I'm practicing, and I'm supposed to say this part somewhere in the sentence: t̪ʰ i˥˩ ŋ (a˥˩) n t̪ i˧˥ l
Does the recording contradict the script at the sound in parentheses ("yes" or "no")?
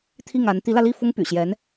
yes